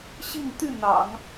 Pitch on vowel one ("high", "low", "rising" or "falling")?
falling